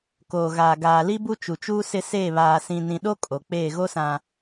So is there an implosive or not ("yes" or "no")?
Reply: yes